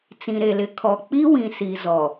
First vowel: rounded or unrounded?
unrounded